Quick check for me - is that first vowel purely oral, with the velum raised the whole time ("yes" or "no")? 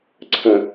no